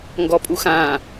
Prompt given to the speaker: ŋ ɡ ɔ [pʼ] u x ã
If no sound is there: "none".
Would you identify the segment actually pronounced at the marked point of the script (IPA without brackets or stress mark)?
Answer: pʼ